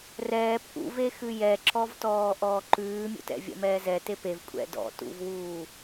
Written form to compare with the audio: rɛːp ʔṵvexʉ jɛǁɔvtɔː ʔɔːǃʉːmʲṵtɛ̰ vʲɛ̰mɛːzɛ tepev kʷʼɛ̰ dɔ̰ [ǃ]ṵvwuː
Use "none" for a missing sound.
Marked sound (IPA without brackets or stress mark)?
t